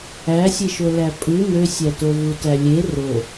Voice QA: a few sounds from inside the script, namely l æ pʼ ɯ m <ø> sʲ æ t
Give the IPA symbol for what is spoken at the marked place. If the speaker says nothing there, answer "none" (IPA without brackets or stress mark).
ø